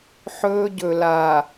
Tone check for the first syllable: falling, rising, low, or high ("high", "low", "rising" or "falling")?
high